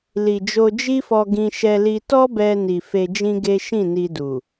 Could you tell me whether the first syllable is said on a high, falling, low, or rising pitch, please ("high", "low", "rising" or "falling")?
low